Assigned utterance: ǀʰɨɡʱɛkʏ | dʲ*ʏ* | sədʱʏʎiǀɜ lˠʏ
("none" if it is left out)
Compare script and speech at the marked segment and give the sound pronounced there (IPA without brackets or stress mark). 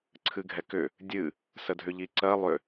ɨ